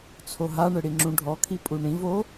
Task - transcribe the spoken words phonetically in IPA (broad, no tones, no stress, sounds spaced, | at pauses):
t͡sʰ o ɦ a ɳ ɘ ɽ i ŋ͡ǁ ũ ɖʱ ɔ kʰ i pʼ u ɳ ĩ v o